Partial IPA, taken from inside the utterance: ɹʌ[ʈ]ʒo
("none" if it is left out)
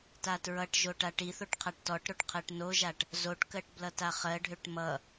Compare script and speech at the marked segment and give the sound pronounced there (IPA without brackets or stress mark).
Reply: ʈ